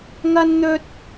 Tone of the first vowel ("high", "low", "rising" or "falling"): high